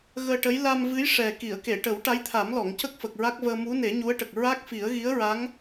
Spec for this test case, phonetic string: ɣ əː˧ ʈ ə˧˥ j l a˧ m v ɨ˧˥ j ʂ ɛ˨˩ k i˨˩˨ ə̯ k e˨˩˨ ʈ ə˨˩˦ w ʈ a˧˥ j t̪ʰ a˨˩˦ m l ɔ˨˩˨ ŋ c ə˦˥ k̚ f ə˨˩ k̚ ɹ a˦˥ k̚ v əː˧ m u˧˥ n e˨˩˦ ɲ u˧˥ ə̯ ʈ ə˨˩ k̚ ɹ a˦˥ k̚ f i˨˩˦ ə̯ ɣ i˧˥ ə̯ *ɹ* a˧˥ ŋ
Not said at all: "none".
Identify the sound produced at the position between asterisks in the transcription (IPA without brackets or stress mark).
ɹ